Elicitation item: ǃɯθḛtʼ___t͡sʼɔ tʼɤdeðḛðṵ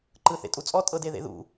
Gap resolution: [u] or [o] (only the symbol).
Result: u